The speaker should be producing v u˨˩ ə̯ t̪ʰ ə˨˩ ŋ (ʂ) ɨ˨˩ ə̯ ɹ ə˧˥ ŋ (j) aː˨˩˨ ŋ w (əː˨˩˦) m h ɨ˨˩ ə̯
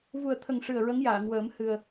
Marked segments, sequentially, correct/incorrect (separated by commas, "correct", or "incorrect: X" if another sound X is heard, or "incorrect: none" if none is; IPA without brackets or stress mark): correct, correct, correct